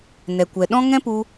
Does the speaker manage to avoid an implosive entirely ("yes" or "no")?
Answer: no